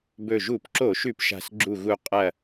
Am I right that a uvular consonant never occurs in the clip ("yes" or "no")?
no